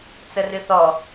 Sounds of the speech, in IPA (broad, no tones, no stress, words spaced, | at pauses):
t͡sərɨθɔ